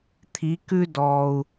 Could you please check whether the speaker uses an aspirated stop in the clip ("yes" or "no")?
yes